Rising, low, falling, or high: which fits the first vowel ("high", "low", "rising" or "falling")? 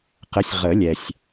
rising